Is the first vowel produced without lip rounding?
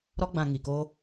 no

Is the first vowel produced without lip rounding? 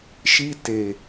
yes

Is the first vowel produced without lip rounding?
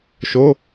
no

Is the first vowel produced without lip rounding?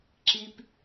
yes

